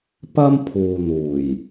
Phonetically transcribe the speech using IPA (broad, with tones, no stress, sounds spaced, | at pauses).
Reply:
p ɐ˥ m pʰ uː˨ n̪ uː˨˩ j